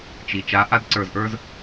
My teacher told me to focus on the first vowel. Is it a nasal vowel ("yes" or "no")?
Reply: no